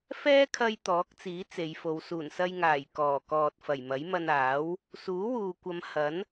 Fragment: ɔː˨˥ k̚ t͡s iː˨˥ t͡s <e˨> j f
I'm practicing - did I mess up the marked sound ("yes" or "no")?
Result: yes